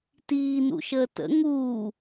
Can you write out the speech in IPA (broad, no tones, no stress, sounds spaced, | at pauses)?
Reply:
t iː n ṵ ʃ əː t ə̰ ŋ uː